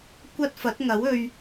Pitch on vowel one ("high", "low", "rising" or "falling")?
high